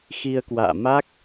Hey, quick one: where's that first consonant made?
velum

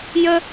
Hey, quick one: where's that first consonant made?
palate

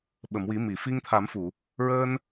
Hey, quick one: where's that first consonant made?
lips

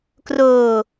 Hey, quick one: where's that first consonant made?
velum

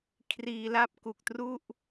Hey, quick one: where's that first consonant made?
velum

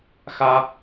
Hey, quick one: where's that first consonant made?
velum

